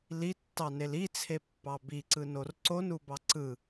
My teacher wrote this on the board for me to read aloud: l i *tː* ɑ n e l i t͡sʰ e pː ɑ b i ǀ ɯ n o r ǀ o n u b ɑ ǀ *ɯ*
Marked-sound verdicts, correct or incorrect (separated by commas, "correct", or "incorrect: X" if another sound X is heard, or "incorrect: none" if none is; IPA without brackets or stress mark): correct, correct